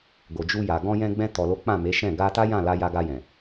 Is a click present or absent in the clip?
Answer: absent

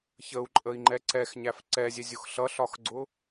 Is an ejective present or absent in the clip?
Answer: present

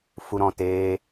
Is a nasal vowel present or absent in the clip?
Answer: present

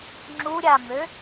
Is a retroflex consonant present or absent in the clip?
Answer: absent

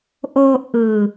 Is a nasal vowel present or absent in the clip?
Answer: absent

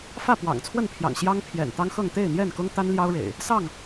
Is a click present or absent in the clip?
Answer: absent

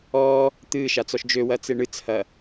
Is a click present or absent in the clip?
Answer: absent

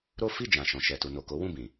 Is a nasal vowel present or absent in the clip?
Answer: present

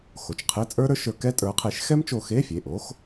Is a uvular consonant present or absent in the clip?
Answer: present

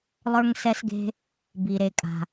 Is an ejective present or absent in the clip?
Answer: present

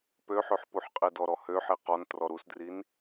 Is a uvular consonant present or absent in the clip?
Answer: present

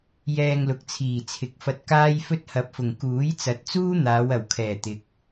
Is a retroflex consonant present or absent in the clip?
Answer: absent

